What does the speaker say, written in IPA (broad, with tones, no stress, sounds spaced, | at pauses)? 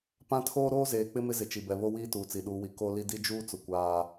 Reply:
p ã˦ tʰ oː˦ ɾ oː˦ z eː˨ k͡p ɪ˦ m ɪ˦ z ɪ˨ t͡ʃ i˨ b ɛ˨ β o˦ w iː˦ t uː˨ t͡s i˨ ɗ uː˨ w i˨ k o˦ l i˦ d i˦ d͡ʒ uː˦ t͡s ʊ˨ kʷ aː˦